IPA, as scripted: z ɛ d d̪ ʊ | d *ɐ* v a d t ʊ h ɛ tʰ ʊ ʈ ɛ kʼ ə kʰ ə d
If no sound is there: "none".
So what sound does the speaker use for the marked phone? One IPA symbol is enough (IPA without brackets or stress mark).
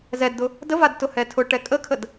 ə